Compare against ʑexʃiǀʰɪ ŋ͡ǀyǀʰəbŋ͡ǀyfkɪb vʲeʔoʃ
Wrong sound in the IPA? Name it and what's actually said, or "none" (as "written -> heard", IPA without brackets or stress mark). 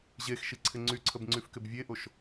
none